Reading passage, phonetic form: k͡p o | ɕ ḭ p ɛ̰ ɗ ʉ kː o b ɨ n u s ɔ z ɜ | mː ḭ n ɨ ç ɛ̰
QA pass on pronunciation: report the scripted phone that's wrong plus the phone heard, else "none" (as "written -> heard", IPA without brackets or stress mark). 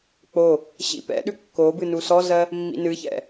none